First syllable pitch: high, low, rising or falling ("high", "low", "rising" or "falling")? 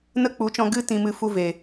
high